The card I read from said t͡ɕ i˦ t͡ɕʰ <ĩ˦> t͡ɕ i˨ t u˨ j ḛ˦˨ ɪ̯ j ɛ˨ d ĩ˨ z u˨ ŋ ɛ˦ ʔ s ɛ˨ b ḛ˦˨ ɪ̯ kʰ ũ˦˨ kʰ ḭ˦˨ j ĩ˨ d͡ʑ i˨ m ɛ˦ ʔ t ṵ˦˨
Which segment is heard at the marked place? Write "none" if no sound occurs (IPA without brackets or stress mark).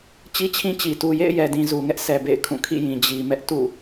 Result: ĩ˦